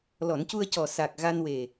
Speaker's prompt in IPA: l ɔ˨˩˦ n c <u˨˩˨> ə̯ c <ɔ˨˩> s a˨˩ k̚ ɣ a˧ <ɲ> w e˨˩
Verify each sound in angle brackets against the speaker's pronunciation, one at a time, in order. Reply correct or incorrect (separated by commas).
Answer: incorrect, correct, incorrect